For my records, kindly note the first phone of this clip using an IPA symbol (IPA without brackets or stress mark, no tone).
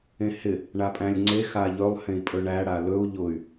ẽ